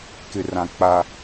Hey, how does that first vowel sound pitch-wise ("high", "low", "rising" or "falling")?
low